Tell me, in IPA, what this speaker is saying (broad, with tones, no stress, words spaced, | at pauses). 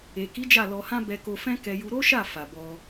e˨ki˨˦ d͡ʒa˦˨lɔ˧hã˦ bɛ˧ko˧fɛ̃˦ kɛ˧ju˧ ɾo˦ʃa˦˨ fa˨bɔ˧